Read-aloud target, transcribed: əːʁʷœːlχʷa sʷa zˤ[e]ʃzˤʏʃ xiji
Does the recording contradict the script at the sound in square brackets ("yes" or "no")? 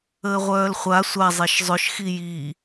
no